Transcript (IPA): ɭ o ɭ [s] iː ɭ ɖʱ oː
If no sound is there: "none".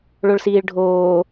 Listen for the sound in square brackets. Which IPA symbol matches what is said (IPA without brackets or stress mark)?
s